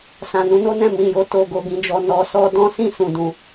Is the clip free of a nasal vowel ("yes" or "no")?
no